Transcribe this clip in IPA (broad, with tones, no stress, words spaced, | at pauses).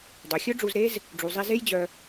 dˤø˨xʲɵ˦ɖ͡ʐu˧zɾe˦z | ɖ͡ʐu˨zˤi˧ ze˦jd͡ʑœ˧